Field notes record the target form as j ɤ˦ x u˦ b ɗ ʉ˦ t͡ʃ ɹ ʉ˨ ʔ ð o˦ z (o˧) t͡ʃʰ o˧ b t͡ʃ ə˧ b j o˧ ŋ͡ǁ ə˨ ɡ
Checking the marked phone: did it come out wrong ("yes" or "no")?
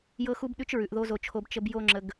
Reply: no